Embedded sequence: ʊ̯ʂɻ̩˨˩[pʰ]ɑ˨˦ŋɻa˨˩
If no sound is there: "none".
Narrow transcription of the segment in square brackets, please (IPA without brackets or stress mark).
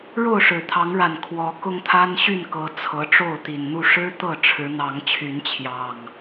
t̪ʰ